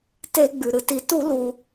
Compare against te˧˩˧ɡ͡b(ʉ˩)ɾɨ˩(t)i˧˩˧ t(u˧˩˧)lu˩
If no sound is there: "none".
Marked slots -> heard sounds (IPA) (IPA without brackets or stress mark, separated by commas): ʉ˩, t, u˧˩˧